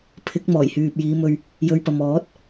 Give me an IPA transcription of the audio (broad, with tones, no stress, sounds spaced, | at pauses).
pʰ ɪ˨˥ k̚ m ɔː˨˩ j h yː˨ p̚ j iː˨˧ m ɵ˧ ɥ | j ɵ˧ ɥ p ɐ˨ m ɔː˨˥ t̚